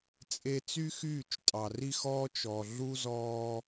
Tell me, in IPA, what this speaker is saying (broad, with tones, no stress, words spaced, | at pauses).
t͡sʼe˧ t͡sy˦xyː˦˨t͡ʃ tʼɑ˨ri˦xɔː˦ t͡ʃɔ˨ ɮu˦zɔː˧